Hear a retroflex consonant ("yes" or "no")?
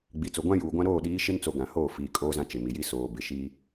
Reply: no